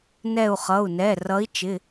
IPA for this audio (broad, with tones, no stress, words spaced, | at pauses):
nɛ˧˩u̯χʌ˩˧˩u̯nɛ˩˧˩ rʌ˨˦i̯t͡ʃɪ˩˧˩